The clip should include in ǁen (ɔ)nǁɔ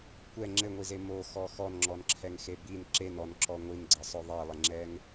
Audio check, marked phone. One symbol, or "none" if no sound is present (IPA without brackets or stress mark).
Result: ɔ